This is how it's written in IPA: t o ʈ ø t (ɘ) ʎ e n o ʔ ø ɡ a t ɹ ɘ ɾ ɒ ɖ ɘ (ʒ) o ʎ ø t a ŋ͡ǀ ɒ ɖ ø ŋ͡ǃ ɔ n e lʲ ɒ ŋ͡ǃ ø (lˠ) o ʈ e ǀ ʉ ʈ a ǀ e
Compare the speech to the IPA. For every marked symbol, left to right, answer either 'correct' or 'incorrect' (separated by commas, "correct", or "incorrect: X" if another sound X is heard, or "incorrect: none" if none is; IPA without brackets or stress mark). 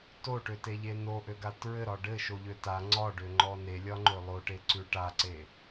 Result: incorrect: e, incorrect: ʃ, correct